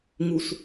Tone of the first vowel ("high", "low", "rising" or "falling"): low